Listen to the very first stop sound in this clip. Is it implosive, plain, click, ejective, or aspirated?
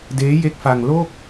plain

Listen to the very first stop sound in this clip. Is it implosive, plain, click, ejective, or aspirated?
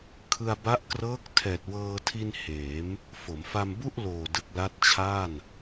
aspirated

